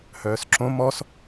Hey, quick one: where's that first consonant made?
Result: throat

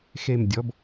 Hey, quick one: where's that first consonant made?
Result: velum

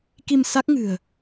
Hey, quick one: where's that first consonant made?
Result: velum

